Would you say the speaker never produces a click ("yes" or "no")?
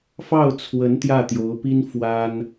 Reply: yes